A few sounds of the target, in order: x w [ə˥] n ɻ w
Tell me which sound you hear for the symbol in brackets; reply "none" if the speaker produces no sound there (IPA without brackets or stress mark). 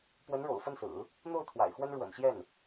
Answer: ə˥